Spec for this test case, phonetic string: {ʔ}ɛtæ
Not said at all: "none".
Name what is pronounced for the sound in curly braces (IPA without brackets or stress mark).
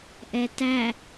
ʔ